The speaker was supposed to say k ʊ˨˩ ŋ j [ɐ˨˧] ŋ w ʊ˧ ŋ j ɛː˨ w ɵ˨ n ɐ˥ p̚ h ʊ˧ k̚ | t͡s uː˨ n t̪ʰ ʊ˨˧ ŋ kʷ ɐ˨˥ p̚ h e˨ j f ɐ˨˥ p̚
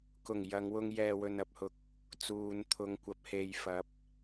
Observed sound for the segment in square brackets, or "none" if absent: ɐ˨˧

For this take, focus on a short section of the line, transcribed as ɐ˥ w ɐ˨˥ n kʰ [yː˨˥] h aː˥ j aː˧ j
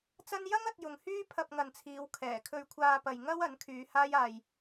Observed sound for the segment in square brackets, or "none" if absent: yː˨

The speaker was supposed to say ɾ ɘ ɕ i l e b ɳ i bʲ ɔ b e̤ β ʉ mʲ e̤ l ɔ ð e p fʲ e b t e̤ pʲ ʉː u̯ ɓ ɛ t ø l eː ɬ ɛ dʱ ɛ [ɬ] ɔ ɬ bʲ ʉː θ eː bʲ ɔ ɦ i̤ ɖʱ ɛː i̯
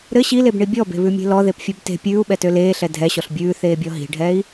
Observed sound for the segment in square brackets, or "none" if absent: ɕ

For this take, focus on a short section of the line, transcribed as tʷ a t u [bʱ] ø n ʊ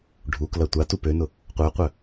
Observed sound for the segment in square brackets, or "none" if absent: p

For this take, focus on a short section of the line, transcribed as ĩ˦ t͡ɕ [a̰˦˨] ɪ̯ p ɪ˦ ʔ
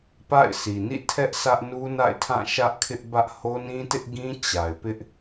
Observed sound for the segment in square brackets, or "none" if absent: a˨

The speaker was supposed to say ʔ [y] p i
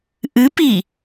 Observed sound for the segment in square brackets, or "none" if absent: ɨ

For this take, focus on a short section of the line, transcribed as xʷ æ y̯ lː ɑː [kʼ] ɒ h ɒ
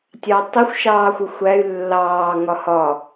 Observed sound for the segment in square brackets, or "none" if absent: ŋ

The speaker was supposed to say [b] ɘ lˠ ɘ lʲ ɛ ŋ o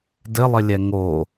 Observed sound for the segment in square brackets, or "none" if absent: d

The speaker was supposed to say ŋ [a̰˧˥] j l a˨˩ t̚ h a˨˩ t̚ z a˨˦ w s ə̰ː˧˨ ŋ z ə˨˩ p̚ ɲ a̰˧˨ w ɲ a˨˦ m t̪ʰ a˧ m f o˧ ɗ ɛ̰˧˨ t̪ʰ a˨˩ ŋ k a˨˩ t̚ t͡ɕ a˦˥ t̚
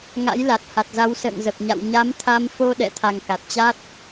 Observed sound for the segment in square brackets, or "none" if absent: a̰˧˥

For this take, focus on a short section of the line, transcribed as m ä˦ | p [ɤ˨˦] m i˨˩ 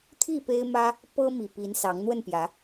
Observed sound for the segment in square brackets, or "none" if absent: ɤ˦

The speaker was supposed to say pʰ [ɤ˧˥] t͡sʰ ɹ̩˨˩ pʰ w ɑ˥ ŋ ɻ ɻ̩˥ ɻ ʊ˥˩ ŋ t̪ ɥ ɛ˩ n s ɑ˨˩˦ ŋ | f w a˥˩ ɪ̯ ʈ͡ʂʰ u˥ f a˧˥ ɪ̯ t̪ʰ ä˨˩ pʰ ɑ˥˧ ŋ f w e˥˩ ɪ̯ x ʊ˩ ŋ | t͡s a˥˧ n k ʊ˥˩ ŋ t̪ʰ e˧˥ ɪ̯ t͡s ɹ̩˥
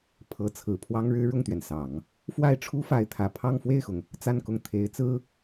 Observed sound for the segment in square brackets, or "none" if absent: ɤ˧˥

